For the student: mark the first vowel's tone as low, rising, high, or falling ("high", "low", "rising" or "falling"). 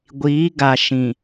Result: rising